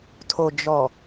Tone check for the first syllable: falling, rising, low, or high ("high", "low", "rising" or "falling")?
low